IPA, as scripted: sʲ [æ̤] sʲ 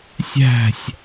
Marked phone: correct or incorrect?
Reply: correct